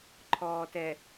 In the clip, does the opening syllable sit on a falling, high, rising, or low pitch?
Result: low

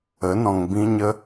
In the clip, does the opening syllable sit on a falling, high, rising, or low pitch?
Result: rising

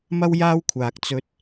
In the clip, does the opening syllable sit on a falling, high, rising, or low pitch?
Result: high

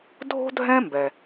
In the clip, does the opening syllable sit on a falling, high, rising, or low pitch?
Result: high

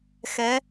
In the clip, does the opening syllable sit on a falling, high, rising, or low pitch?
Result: rising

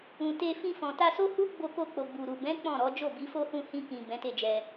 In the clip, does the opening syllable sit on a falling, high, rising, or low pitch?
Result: low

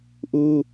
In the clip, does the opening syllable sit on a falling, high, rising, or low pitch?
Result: high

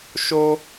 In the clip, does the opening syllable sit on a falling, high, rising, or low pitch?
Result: high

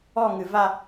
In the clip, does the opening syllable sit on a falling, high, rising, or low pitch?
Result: falling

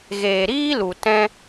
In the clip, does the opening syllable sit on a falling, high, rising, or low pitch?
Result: low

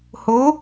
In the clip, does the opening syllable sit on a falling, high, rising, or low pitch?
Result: rising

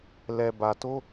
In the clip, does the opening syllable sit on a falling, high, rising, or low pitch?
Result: low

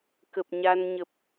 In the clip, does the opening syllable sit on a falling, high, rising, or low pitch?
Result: low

